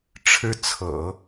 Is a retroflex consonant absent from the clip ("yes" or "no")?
no